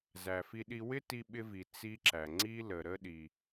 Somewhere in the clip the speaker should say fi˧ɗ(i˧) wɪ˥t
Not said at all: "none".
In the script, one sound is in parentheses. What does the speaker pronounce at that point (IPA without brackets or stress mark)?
i˧